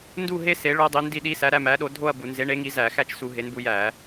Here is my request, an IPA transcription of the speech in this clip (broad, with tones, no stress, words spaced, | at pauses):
ndu˥˧ ɦe˦˥ se˨˥ɭo˦˥dˤi˨˥ ndi˥˧ɗi˦˥sæ˨˥ ɾæ˥˧mæ˨˥ɗo˨˥ dʱo˥˧ɐ̯ bu˧˩˧nze˨˥ɳe˨˥ŋi˨˥ zæ˧˩˧xæ˥˧t͡ʃsu˧˩˧ ɦe˨˥nbu˨˥ jæ˧˩˧